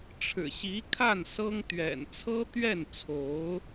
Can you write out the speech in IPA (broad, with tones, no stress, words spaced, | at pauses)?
ʈ͡ʂʰɻ̩˨˩ɕi˧˥kʰa˥˩n sɤ˥ŋ t̪ɥɛ̰˨˩nt͡sʰɤ˥t̪ɥɛ˥˩nt͡sʰo˧˥ʊ̯